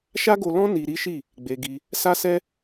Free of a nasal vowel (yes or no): no